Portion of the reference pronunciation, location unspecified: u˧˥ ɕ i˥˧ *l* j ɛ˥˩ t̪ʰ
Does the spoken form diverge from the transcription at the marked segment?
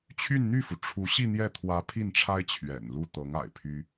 yes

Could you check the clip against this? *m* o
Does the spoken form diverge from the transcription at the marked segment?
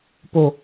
yes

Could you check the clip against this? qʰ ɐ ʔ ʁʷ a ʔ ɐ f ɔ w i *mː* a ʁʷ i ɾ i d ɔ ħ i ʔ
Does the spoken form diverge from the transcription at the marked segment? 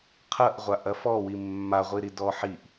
no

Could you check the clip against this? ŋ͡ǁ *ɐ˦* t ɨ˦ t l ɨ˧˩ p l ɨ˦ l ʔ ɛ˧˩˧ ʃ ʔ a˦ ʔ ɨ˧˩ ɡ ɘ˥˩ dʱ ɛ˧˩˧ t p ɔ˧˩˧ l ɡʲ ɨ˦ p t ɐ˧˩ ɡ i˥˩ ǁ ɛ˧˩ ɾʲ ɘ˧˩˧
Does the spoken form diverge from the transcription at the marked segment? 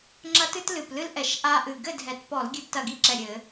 no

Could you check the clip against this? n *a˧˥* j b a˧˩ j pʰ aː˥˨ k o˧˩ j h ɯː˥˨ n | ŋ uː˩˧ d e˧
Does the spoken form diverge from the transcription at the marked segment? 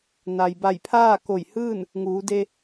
yes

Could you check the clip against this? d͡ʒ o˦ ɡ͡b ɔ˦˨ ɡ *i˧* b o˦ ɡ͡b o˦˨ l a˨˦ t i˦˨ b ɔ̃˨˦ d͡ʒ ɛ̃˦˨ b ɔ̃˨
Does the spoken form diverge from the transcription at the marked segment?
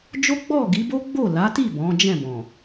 yes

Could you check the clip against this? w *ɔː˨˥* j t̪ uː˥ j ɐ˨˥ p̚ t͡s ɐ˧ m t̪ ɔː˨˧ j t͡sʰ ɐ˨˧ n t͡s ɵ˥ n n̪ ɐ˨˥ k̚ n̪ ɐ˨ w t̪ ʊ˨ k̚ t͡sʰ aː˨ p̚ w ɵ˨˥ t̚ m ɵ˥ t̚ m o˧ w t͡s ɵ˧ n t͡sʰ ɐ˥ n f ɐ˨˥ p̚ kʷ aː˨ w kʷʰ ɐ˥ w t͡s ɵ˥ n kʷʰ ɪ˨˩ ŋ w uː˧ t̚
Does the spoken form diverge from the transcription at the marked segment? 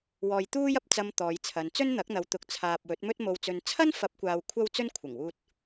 yes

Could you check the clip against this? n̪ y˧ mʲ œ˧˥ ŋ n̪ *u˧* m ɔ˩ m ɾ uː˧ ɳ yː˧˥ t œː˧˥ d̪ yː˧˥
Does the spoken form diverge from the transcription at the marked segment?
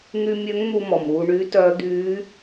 no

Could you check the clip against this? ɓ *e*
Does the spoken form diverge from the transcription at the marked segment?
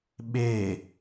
no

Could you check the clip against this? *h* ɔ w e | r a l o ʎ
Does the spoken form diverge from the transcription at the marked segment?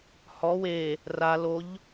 no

